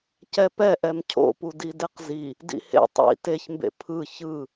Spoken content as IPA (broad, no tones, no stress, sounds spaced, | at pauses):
c ɛ p ɛ ʔ ɛ m cʰ o̰ p u d i d e q z i | d ḭ h ḛ tˤ ḭ t e ç m b ḛ pʰ ɯ ç ɯ